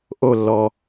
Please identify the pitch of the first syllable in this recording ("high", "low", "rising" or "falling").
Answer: falling